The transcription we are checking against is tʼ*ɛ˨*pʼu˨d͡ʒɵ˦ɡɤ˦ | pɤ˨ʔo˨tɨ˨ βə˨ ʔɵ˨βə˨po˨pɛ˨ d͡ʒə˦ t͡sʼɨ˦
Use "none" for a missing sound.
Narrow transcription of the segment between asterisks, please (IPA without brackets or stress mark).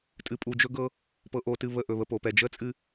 ɨ˨